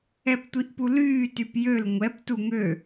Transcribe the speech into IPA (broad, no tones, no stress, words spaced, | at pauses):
ɛptʷiʔpulyː typjøl ŋʷɛp tuŋø